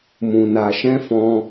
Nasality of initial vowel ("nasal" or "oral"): nasal